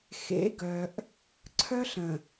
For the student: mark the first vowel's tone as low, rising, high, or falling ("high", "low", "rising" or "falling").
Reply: rising